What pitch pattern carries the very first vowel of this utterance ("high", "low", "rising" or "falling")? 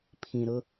low